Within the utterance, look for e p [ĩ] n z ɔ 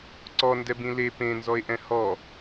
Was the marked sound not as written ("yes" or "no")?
yes